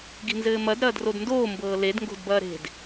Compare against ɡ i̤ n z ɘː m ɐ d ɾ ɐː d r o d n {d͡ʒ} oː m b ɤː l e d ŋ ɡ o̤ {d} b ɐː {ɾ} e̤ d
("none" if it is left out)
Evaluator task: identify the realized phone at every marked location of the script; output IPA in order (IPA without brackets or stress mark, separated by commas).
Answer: d, d, ɾ